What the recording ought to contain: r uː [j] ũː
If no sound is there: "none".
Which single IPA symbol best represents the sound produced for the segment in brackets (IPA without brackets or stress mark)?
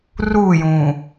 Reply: j